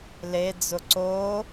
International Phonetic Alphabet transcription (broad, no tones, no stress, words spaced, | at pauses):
led͡zʊ ǀo